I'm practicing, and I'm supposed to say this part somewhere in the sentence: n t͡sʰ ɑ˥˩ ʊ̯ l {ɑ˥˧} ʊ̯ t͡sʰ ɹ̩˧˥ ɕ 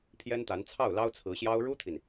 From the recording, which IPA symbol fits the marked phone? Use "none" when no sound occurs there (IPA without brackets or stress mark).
ɑ˥